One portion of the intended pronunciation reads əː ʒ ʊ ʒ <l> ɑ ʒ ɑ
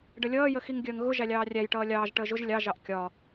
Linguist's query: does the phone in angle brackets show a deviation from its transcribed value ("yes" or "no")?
yes